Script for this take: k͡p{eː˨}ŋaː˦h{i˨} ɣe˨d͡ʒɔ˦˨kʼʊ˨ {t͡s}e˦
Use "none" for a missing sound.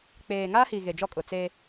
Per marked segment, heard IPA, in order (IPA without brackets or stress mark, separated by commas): eː˨, i˨, t͡s